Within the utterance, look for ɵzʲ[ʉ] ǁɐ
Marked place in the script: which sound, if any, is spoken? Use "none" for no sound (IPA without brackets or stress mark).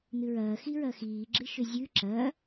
ʉ